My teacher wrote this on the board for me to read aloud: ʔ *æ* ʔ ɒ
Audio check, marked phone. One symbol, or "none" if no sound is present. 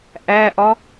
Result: æ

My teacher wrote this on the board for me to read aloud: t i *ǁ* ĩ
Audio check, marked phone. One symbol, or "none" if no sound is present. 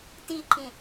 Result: ǃ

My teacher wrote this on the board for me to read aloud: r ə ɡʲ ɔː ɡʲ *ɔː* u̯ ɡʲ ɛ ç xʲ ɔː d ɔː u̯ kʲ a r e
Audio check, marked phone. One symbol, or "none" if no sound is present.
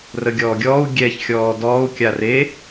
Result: ɔː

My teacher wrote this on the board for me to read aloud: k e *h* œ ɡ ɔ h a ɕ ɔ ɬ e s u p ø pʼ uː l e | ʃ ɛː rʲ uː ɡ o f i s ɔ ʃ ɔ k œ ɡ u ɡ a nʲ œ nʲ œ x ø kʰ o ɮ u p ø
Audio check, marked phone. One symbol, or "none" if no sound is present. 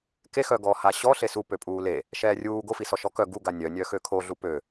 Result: x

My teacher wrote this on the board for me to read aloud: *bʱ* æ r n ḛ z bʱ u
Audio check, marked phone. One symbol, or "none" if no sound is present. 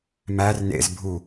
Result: m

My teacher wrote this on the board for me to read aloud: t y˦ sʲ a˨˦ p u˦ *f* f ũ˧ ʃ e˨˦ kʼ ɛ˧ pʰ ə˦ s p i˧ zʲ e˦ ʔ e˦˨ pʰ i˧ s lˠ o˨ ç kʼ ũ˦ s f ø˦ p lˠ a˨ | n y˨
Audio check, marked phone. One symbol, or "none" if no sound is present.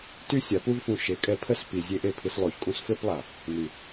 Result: v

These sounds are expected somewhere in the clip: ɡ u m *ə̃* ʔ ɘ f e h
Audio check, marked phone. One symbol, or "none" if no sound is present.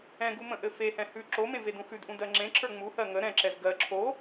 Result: ə̃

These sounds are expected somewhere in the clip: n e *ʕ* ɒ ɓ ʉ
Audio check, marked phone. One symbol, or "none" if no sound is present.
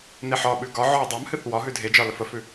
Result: ħ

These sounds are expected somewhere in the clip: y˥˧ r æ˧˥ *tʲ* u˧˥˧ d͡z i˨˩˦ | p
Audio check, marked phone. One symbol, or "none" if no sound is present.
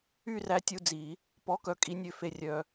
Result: tʲ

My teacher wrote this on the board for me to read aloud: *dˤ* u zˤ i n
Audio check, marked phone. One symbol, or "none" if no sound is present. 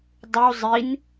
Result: dˤ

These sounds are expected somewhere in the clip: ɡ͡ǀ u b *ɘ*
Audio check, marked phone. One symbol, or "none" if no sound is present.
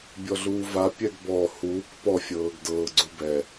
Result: ɛ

